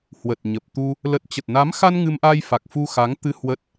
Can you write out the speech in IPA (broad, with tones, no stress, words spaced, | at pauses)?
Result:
hwə˨˩t̚ɲə˨˩p̚t̪u˧ | lə˨˩t̚t͡ɕə˨˩t̚na˨˦mxa˧n ŋɨ˧mʔa˧jfa˨˩k̚ fu˧xa˨˦ŋt̪ɨ˧ hwə˦˥t̚